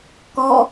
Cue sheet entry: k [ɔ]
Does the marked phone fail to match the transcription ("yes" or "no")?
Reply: no